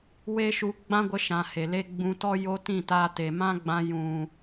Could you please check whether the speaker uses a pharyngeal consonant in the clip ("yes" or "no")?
no